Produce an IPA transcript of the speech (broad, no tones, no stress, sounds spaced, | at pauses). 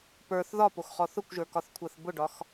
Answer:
p ə˞ θ ð ɒ p o x χ ɔ θ ʊ kʷ ʒ ə˞ k ɒ θ kʷʰ a θ b ʊ ɖ ɒ x